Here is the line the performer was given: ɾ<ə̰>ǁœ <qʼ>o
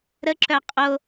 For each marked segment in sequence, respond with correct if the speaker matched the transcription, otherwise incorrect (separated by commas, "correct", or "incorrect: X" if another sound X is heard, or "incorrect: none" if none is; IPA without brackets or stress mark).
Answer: incorrect: ə, correct